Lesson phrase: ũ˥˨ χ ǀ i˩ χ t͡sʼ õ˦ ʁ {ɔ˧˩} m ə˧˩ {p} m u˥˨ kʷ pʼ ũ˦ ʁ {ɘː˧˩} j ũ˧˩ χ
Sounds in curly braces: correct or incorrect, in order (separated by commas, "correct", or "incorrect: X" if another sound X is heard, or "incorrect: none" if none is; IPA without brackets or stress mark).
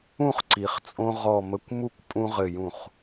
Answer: correct, incorrect: kʷ, incorrect: ɘ˧˩